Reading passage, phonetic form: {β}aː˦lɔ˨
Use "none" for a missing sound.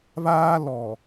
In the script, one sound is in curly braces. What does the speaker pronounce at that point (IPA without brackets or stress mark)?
β